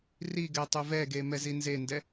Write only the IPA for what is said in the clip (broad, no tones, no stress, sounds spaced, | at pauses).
r i ɡ ɛ tˤ u v ɛ ɡ e m ɛ z i n z e n d ɛ